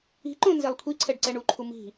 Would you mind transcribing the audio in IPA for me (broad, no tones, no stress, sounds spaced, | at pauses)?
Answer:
i̤ ǃ õ n z e lˠ kʷʰ i ǀʰ ɛ ɖ ǀ ɛ ɳ u ǃʰ u m i̤